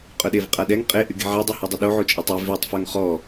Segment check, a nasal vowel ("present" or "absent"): absent